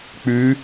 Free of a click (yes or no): yes